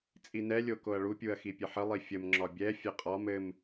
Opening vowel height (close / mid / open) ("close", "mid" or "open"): close